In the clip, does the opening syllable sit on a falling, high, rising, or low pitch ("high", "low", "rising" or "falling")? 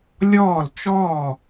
falling